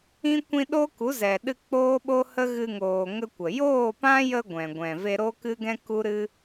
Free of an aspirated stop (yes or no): yes